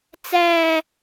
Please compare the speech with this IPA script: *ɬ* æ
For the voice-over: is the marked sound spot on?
no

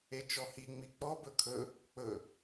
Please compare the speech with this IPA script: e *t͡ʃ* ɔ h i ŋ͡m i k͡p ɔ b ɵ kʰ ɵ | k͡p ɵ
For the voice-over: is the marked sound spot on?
yes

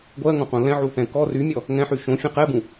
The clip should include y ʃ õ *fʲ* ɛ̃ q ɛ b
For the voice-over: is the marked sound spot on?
yes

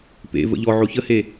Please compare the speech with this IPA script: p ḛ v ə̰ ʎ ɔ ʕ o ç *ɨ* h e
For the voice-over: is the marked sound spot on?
no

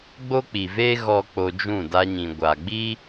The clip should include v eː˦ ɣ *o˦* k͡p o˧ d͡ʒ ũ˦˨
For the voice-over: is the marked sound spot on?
no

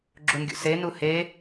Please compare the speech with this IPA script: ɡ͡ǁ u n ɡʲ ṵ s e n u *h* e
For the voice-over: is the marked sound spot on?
yes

